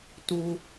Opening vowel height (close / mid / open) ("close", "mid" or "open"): close